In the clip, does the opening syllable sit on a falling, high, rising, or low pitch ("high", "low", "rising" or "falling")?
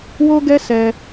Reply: high